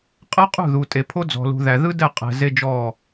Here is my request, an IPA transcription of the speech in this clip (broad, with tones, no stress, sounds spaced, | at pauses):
qʼ ɛ˦ qʼ ṳ˦˨ ð u˨ tʼ e˨ pʰ o˦ d͡z ɔ̤˨ l ṳ˨ ð æ˨ ð ɯ˦ d ɛ˦˨ qʼ ɛ̤˨ z e˦ d͡ʒ ɔ˦˨